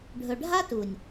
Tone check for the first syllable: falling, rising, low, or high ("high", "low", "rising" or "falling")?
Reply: low